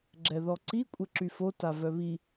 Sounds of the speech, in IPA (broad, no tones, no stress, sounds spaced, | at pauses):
ɡ͡ǁ ɛ ð ɔ ǀ i kʷʼ ɛ ǁ y f o t a v œ β i